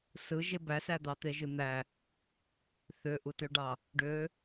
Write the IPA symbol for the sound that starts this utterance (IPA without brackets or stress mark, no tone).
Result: s